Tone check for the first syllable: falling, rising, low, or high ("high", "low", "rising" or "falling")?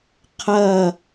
falling